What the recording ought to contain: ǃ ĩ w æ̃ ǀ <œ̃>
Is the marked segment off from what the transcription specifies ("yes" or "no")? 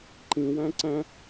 yes